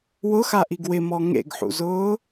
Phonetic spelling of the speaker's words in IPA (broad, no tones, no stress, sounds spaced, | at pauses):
w ʊ x a ʔ i ɡ w ɪ m ɔ ŋ ḛ ɡ ħ ṵ z ʊː